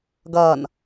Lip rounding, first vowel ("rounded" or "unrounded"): unrounded